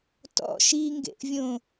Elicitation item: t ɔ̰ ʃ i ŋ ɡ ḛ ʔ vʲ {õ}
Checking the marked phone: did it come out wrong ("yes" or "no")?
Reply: no